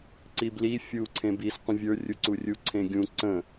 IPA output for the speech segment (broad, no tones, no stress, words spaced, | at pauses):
ǀibli fʲu ǀʰẽbis qʷə̃vʲə˞ rʲuǀurʲu ǀʰẽɡʲũ ǀə̃